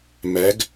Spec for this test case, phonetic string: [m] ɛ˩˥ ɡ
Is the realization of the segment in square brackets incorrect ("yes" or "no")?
no